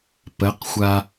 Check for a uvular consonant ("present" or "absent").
present